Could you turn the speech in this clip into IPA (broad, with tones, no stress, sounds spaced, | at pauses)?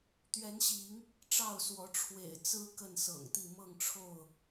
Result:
t̪ ɥ ɛ˨˦ n ɕ i˨˦ ŋ | ʈ͡ʂ ɑ˥˨ ʊ̯ s w ɔ˨˦ ʈ͡ʂʰ w ḛ˨˩ ɪ̯ t͡s ɹ̩˦ k ə˥˨ n s ɤ̰˨˩ ŋ t̪ i˥˨ m ɤ˥˨ ŋ ʈ͡ʂʰ o˥˨ ʊ̯